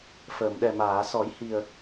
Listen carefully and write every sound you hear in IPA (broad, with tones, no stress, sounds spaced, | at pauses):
f əː˨˩˨ m ɗ ɛ˨˩ m aː˨˩˨ s ɔ˨˩˦ j h i˨˩ ə̯